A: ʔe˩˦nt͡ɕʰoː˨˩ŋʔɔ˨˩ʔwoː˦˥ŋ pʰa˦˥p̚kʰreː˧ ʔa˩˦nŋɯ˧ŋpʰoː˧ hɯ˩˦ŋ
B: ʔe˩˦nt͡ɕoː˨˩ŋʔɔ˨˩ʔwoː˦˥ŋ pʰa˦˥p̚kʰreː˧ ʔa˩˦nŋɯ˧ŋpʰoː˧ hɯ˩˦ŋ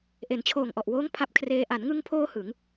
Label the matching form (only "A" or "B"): A